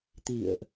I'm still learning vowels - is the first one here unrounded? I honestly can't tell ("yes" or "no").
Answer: yes